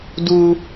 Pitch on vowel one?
high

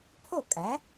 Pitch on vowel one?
falling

